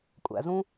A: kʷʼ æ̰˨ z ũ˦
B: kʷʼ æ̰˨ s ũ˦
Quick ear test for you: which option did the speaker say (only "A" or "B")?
A